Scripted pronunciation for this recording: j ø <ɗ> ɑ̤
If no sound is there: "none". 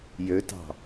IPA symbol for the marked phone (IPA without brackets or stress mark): t